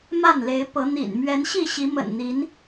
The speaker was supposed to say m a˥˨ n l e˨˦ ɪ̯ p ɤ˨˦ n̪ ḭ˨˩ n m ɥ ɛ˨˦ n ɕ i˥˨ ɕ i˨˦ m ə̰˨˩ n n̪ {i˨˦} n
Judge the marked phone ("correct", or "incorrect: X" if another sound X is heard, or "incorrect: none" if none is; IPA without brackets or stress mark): correct